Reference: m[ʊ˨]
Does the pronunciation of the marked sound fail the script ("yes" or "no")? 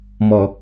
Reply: yes